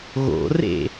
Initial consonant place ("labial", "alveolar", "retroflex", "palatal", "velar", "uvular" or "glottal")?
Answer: velar